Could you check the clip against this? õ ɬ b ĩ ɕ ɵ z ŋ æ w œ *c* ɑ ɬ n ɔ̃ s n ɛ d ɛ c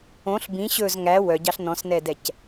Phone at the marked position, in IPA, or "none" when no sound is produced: ɟ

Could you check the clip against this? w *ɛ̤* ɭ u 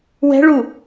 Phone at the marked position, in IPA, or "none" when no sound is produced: ɛ̤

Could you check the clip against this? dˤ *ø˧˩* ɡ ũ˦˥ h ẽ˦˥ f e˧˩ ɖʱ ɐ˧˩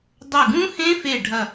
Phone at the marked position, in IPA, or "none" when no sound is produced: ɵ˧˩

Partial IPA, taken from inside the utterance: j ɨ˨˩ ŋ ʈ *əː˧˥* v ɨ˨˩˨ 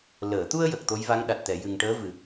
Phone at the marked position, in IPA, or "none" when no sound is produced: əː˧˥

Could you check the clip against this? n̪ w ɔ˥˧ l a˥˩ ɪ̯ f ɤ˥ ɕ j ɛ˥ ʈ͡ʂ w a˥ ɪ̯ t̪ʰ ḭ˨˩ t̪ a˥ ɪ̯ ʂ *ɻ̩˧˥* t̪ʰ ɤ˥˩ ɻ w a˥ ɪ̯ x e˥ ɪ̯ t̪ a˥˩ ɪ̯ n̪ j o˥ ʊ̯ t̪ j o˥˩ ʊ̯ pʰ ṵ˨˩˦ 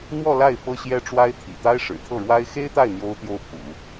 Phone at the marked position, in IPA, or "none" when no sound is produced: ɻ̩˨˩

